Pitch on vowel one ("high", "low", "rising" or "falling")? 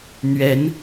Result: rising